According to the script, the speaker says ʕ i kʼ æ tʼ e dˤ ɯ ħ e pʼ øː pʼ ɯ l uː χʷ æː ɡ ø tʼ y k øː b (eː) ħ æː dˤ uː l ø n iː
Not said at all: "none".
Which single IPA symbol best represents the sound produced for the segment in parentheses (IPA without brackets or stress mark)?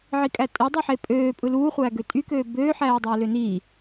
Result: øː